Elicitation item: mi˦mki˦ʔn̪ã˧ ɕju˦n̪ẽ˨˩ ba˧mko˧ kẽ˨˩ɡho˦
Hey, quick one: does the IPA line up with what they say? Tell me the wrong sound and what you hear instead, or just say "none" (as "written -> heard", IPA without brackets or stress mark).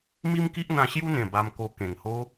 ɡ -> ŋ